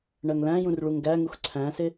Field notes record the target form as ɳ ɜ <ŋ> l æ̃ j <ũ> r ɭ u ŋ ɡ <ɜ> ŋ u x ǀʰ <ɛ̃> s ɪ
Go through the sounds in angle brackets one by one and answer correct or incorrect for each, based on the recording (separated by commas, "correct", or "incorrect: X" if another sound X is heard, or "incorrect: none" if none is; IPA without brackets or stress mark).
correct, correct, incorrect: æ, incorrect: æ̃